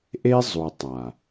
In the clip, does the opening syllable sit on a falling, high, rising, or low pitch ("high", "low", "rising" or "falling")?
high